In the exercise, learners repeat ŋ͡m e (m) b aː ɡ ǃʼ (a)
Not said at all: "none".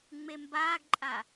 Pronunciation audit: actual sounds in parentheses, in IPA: m, a

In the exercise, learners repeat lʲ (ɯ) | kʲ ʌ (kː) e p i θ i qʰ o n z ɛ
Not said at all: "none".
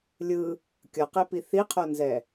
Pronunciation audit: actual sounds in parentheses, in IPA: ɯ, q

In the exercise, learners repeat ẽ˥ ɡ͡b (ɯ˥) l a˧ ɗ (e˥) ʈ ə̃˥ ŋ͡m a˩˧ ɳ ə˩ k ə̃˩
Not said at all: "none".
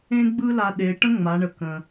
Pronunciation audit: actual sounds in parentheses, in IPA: ɯ˥, e˩˧

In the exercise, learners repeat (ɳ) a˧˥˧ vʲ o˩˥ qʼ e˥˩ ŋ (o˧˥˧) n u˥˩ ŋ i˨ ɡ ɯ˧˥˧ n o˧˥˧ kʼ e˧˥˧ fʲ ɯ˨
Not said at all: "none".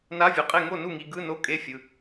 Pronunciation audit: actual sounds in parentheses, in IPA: n, o˥˩

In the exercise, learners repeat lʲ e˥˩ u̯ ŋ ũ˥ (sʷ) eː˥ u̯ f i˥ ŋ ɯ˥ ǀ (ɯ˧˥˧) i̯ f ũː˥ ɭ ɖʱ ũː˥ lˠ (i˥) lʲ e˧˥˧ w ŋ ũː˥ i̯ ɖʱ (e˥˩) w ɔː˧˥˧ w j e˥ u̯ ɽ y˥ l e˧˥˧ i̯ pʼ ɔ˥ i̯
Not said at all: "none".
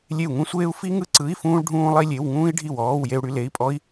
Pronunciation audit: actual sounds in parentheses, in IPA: sʷ, ɯ˧˥˧, i˥, i˥˩

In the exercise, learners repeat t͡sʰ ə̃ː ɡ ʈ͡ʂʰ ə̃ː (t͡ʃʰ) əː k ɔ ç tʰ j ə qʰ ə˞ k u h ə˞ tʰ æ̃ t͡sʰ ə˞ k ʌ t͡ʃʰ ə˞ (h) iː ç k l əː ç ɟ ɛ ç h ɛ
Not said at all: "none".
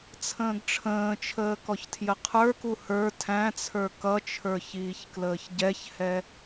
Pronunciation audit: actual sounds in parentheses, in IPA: t͡ʃʰ, ç

